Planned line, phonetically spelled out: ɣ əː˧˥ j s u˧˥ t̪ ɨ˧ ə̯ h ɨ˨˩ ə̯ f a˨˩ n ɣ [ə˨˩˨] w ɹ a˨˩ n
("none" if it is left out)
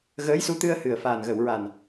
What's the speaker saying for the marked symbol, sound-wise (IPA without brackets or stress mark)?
ə˨˩˨